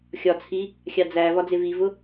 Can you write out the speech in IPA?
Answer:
xʲ ɒ t͡sʰ i | xʲ ɑ d͡z æ v ɒ d͡z ɪ v i v ʊ

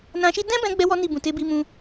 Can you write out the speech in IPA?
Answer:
n ã˧ ʃ i˦ d ɛ̃˦ b ɛ̃˧ ɡ͡b ɛ˦ w ɔ˦ n i˦˨ b ũ˨ t e˨˦ b i˧ m ũ˧

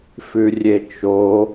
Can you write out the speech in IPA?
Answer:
f ʉ rʲ e t͡ʃ o

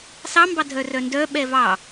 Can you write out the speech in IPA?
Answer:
s ɑ m b ɑ dʱ œ r œ n d œ ɓ ɛ v ɑ

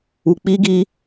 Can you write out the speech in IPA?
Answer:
u˧ k͡p i˦ ɡ i˦

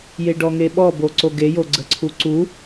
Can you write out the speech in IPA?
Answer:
j e ɖ ɔ ŋ e ɓ ɔ b o ǀ o ɡ e j o ɡ͡ǀ ə ǀʰ u ǀ u

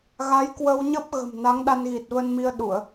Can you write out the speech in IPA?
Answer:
ɣ a˨˦ j k w ə˧ w ɲ ə˦˥ p̚ ɣ ə̤˨˩ m n a˨˦ ŋ ɗ a˧ n ɣ i˨˩ t̚ v ə˧ n m i˧ ə̯ ɗ u˧˩˨ ə̯

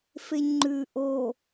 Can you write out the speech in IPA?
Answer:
f e ɲ ŋ͡ǃ ʉ ʔ o

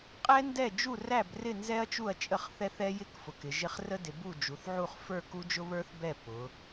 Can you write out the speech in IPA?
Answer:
qʼ ɛ˦˥ n d ɛ˥˩ d͡ʒ u˥˩ r æ˥˩ b r ɪ˥˩ n z ɛ˦˥ ɐ̯ t͡ʃ u˥˩ ɐ̯ t͡ʃʼ ə˥˩ χ θ ɛ˦˥ θ ɛ˦˥ j ɪ˦˥ k f ʊ˩˧ k ɪ˩˧ ʒ ɪ˦˥ χ r ə˦˥ d ɪ˩˧ b u˥˩ d͡ʒ u˩˧ θ ʕ u˥˩ χ f ə˞˥˩ k u˦˥ d͡ʒ ʊ˦˥ β ə˞˦˥ θ b ɛ˥˩ p ʊ˩˧

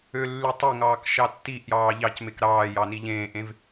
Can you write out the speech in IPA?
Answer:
ø lː y tˤ e ŋ ɑː k ʃ ɑ tː i ʔ j ɑː ʎ ɑ c m e k ɾ ɑː j ɑ n i ʎ ẽː ʔ ẽ v

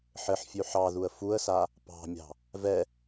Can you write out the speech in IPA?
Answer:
ħ ɘ ħ fʲ ʉ ħ ɑ ð u ə̯ f u ə̯ s a | p ɑ̤ mʲ ɑ̤ | v ɛ

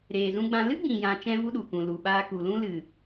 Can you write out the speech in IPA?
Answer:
ɾ eː˨ z ũ˧ ɡ͡b ã˧ l ɨ˦ ɡ͡b ĩ˨ j ã˨ t͡ʃ ɛ̃˦ v u˦ ɗ u˨ k ũ˨ l u˨ ɓ aː˦ k u˨ l ũ˦ l ɨ˨

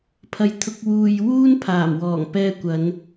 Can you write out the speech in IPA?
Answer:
pʰ ɐ˨ j t̪ʰ ʊ˧ k̚ w uː˨ j w uː˥ n pʰ aː˨˩ m w ɔː˨˩ ŋ p ɛː˧ kʷ ɐ˨˧ n

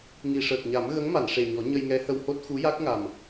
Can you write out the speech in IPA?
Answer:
ŋ i˨˩ ʂ əː˨˩ k̚ ɲ a˨˩˦ m ɣ ə˧˥ ŋ m a˨˩˨ n ʂ e˨˩ ɲ ɔ˨˩˦ ɲ ə˧ j ŋ ɛ˧˥ h ə˧ w h o˦˥ t̚ x u˧˥ j a˦˥ k̚ ŋ a˨˩ m

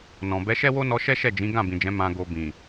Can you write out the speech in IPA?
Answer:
n ɔ̃˨ b ɛ˨˦ ʃ ɛ˦ w o˦ n ɔ˧ ʃ ɛ˦ ʃ ɛ˦˨ d͡ʒ ĩ˨˦ ɡ ã˦˨ b ĩ˨ d͡ʒ ɛ̃˨˦ m ã˧ ɡ o˧ b ĩ˨

